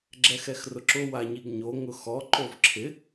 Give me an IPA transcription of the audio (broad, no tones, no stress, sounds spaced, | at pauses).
ɡ͡ǁ ɛ x ɛ x r ʊ ǁ ʊ w a ɲ i ɡ ɲ o ŋ ʊ x ɔ ǃ o v ǁʰ ɪ